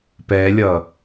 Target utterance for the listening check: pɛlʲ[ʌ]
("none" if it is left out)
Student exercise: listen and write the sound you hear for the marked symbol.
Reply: ʌ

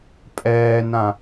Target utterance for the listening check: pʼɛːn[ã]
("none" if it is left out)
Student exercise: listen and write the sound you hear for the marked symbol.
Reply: ã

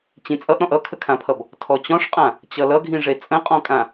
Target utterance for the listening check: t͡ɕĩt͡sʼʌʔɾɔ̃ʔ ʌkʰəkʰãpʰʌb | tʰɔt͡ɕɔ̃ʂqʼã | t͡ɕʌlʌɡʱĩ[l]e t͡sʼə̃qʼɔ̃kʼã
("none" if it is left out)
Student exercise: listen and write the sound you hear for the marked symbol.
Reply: ʐ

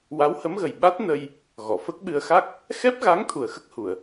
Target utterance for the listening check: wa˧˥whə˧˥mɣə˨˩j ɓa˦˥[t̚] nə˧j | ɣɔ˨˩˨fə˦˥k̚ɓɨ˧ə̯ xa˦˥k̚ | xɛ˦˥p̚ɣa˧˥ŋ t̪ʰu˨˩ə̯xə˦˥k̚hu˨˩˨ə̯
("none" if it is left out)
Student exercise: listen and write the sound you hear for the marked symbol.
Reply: t̚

